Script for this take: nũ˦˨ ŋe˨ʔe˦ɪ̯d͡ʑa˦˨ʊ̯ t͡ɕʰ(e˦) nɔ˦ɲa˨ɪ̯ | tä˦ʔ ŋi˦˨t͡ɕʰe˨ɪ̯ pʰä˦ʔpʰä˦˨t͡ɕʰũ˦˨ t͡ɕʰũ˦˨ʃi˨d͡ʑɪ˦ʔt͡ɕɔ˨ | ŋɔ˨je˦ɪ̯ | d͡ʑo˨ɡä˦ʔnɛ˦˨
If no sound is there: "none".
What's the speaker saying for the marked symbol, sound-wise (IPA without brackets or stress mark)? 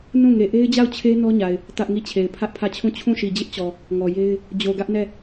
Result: e˦